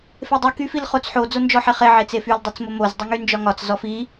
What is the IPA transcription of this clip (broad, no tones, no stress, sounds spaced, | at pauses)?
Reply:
f e dˤ y k y f i l χ o t͡s ħ o d͡z o n d͡ʒ ɔ ħ e χ e ʕ e t͡s e f y l dˤ i t͡s m o m o z dˤ y ŋ y n d͡ʒ ɒ ŋ ɒ t͡s z ɔ f i